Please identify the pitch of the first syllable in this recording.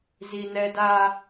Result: high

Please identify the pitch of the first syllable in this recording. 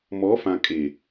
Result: rising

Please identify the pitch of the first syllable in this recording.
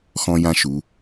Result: high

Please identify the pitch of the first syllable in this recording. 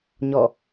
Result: falling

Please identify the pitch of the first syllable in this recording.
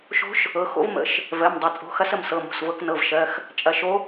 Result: rising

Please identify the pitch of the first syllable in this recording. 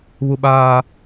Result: high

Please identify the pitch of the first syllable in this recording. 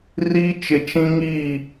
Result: high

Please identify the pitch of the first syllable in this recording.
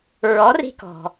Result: rising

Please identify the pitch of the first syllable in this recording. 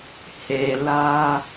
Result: low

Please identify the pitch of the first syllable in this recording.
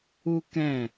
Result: high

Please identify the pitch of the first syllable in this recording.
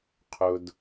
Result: low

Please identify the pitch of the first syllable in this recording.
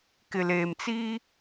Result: low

